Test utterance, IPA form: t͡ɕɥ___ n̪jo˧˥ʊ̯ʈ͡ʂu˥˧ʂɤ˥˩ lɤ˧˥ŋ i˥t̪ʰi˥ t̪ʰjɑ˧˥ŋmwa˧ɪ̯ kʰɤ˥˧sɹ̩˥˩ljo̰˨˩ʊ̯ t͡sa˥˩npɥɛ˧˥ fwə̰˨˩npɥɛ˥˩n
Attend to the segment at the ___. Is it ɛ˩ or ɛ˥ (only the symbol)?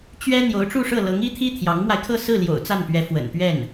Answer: ɛ˥